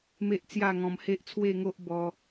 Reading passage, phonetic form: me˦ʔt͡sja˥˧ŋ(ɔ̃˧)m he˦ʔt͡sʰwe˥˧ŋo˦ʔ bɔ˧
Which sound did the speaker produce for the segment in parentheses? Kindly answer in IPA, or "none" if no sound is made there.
ɔ̃˧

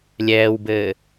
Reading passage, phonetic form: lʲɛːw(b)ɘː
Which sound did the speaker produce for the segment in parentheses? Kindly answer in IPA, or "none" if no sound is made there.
b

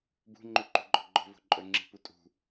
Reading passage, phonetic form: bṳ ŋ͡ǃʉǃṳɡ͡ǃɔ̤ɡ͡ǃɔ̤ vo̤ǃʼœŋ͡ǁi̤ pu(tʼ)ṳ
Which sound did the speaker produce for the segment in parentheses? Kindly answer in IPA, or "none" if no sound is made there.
tʼ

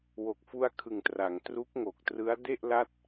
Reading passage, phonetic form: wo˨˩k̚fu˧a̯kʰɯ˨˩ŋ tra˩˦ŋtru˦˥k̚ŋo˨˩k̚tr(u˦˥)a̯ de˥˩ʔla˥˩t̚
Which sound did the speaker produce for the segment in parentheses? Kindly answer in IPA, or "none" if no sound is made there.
ɯ˦˥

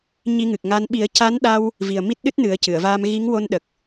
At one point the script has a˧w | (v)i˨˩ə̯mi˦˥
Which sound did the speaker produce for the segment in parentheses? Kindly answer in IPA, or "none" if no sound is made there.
v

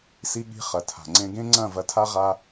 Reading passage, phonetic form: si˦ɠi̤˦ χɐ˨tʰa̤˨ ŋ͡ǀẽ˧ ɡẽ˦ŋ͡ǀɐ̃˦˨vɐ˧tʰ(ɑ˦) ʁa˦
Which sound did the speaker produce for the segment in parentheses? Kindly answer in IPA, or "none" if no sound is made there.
a˦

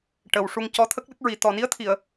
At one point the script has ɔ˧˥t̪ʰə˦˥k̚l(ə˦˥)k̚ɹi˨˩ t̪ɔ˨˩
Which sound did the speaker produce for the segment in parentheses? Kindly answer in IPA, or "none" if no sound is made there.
ə˦˥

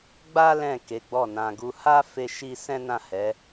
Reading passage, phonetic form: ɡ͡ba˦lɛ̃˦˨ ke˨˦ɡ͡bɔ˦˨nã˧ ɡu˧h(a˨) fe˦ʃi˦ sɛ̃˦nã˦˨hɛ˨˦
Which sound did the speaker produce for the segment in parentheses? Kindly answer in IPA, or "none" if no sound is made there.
a˦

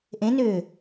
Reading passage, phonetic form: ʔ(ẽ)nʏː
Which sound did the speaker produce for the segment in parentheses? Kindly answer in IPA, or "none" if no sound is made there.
ẽ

